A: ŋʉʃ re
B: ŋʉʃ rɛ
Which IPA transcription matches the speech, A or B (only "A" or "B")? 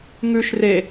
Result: A